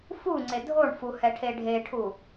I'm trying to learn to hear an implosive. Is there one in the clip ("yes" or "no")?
no